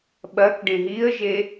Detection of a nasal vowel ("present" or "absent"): present